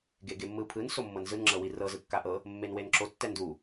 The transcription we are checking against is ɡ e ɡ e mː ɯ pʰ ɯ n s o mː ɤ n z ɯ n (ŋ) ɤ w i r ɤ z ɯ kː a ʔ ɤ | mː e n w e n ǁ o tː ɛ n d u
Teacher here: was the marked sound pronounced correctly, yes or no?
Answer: no